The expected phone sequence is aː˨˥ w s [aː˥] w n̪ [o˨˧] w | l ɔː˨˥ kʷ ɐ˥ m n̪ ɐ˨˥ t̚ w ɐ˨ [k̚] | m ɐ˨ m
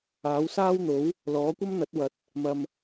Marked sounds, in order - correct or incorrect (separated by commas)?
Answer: correct, incorrect, incorrect